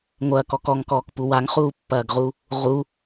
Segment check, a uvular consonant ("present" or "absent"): present